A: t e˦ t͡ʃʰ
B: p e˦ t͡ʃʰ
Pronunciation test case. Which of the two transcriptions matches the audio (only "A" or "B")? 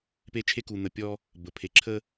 B